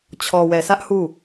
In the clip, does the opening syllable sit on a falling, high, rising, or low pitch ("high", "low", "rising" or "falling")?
low